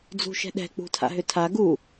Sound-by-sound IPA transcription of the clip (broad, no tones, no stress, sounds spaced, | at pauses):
d͡z ṳ ʃ ɛ̤ ɗ ɛ̤ k͡p ṳ tʰ a̰ ɦ ʏ tʰ a ɡ u